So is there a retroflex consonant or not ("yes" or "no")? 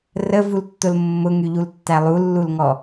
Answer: no